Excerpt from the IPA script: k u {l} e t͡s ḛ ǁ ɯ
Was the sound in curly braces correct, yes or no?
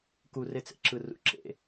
no